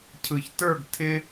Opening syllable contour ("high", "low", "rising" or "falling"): low